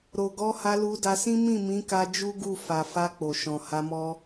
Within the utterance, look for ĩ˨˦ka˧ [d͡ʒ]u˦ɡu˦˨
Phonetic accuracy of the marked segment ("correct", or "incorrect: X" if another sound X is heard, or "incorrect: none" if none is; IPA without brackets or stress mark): correct